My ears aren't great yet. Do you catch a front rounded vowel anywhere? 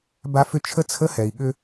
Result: yes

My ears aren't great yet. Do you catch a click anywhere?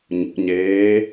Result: no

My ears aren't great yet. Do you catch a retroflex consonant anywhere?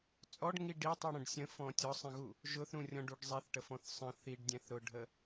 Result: yes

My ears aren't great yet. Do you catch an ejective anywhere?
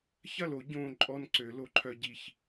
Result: yes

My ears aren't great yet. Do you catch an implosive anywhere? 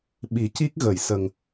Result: yes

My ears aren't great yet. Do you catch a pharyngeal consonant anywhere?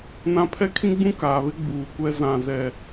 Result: no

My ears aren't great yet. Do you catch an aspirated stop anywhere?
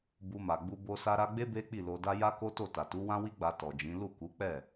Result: no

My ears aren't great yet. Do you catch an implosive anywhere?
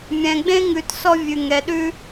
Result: yes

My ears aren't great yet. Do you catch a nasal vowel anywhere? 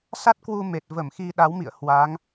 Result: no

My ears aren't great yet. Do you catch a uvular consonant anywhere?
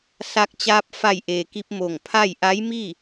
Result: no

